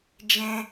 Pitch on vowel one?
high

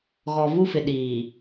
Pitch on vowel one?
low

